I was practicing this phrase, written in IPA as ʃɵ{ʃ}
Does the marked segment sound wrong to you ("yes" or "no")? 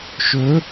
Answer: yes